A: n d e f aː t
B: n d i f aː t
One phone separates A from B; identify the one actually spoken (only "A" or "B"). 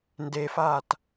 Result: A